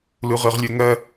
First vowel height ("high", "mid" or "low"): high